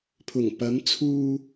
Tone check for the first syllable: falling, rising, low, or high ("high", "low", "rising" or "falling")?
low